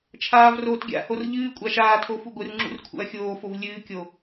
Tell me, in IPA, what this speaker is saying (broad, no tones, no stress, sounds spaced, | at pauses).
t͡ʃʰ aː v r oː t ɡʲ a̰ h o r ʎ ɨː kʷʼ a ʃ aː tʰ o f u ɡʷ ɨ r ŋ͡ǁ ṵ r kʰ ṵ ɐ̯ xʲ oː f o v lʲ ɨː kʲ o